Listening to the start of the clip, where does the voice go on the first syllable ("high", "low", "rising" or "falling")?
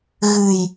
low